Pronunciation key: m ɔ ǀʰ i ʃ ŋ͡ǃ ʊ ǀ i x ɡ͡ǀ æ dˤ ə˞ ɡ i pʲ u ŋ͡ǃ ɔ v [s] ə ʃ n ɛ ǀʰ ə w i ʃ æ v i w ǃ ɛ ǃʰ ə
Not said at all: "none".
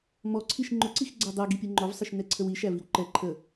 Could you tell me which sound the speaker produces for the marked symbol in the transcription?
sˤ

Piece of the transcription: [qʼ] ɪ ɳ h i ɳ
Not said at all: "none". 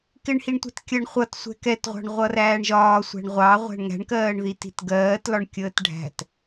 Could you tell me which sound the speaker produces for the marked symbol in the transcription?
k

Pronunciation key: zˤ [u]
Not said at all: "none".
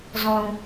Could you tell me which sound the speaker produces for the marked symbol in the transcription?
ũ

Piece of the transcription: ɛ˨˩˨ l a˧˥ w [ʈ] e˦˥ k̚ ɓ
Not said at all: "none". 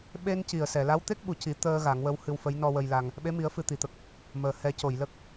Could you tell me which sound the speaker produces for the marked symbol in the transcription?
t̪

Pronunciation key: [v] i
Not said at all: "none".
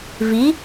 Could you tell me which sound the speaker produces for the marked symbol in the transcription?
v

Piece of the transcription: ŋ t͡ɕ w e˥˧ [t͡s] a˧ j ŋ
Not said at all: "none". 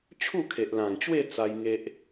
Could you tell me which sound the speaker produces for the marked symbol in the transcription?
t͡s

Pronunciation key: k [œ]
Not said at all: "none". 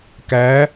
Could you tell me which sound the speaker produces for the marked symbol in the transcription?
æ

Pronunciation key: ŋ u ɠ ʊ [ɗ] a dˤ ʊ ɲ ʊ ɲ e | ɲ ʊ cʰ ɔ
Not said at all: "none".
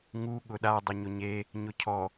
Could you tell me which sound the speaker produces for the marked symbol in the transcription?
ɗ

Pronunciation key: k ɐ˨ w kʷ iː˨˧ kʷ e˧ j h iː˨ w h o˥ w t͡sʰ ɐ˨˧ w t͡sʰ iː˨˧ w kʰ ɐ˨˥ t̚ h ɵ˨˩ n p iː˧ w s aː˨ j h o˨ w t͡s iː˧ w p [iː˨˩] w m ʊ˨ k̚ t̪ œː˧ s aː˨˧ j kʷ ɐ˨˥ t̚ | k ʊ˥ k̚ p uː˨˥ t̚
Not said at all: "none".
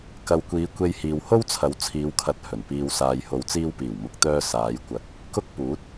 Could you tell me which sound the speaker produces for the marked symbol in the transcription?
iː˨˩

